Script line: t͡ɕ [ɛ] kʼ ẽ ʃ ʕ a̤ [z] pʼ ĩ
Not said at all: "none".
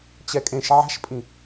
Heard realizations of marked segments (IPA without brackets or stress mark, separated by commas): ɛ, ʃ